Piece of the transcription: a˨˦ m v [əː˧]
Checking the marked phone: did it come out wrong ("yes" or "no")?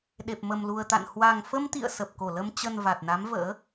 yes